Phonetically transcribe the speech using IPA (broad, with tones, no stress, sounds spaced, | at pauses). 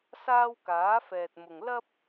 s aː˥ w k aː˨˥ f ɛː˨ t̚ m ʊ˨ ŋ l ɐ˥ p̚